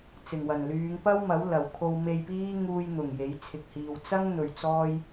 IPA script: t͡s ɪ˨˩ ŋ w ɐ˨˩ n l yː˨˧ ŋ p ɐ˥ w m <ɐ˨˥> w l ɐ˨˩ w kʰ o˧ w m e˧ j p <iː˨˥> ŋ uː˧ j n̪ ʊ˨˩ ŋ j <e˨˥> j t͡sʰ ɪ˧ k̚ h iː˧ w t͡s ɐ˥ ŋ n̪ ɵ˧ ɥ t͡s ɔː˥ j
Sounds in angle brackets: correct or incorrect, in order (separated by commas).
correct, incorrect, correct